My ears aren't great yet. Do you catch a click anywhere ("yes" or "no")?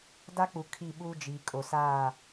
no